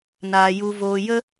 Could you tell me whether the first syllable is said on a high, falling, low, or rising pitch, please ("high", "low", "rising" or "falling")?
low